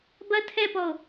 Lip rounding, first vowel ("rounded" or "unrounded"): unrounded